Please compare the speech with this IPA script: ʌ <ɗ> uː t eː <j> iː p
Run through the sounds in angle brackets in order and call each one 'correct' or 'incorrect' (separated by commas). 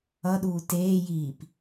correct, correct